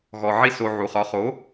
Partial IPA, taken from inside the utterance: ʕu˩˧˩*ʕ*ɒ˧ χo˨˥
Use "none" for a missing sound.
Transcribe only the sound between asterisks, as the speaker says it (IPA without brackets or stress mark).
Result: χ